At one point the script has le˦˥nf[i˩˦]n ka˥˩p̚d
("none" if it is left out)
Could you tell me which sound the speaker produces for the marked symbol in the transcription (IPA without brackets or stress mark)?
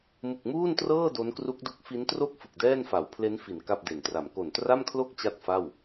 i˩˦